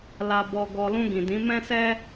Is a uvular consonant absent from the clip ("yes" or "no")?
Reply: yes